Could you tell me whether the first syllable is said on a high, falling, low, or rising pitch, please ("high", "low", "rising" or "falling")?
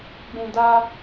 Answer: low